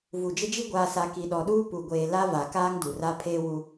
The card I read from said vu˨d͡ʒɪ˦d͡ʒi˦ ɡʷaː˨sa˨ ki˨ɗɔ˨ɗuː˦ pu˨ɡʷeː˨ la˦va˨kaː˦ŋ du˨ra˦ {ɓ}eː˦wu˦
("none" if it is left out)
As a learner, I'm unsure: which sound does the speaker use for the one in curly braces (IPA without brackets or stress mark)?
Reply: pʰ